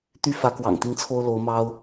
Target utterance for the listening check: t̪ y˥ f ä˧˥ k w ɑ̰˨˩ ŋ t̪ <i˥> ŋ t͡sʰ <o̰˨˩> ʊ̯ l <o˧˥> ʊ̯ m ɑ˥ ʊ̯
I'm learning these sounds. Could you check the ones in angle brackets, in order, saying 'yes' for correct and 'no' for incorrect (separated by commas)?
yes, no, yes